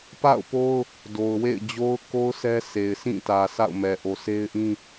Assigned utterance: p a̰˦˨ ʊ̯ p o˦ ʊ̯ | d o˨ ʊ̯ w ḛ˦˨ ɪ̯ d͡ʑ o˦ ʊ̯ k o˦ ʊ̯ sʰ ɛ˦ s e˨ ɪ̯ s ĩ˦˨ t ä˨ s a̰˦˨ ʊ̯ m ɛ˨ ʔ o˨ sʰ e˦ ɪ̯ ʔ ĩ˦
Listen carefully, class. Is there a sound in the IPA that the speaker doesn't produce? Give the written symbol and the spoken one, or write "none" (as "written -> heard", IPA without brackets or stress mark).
none